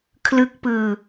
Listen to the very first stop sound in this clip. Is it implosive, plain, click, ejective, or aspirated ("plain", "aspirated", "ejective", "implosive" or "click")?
aspirated